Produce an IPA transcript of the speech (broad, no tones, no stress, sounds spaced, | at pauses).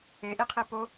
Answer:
e ʔ i qʰ i p o